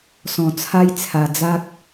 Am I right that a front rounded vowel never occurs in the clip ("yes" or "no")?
yes